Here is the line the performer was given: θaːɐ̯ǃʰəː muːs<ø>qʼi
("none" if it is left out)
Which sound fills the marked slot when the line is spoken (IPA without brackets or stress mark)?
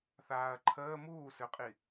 ø